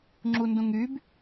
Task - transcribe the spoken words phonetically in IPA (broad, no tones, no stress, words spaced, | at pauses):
ŋ͡ǁundũŋyb